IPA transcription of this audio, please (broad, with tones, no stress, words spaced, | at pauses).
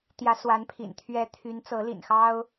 t̪jä˧˥swa˧˥npʰḭ˨˩n t̪ʰɥɛ˧˥ t̪ʰy˧˥nt͡sɤ˧˥ lḭ˨˩nxɑ˥ʊ̯